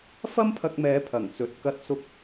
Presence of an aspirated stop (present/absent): present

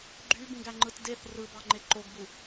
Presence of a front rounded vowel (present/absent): present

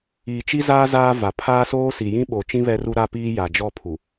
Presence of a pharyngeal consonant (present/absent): absent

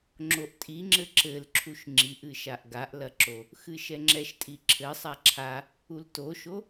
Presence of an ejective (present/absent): present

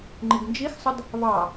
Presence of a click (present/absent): present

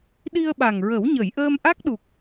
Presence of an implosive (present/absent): present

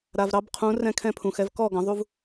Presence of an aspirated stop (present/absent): present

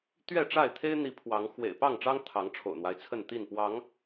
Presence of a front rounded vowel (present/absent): absent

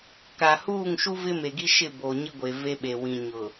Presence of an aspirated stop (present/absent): absent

